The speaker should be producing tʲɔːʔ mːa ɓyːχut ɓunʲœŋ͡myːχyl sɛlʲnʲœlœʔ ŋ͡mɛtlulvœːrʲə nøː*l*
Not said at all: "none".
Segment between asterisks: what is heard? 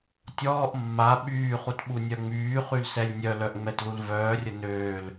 l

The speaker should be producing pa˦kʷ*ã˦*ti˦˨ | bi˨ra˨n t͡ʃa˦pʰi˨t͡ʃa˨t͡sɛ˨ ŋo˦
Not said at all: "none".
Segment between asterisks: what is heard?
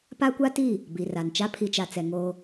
a˦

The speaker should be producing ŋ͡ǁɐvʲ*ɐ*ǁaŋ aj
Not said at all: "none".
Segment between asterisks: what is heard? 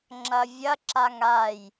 ɐ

